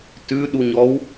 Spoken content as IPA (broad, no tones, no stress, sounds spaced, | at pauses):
t ʉ ɗ u ɲ ɔ w